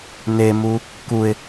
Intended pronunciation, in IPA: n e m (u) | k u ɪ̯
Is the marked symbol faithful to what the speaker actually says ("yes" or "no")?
yes